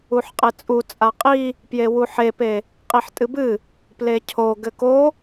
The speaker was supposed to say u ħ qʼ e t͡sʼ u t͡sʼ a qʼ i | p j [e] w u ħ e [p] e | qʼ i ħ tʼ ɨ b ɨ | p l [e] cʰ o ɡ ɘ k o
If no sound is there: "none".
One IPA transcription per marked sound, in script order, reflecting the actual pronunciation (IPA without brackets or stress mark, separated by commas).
e, p, e